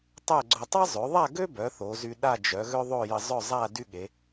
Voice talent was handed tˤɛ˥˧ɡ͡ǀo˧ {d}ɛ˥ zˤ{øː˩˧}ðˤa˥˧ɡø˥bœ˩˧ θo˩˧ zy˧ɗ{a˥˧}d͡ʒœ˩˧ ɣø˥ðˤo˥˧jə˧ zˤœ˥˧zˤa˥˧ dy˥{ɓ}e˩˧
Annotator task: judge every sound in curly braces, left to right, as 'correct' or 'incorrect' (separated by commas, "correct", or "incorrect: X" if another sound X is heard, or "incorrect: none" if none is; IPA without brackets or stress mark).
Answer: incorrect: tˤ, incorrect: ø˩˧, correct, incorrect: ɠ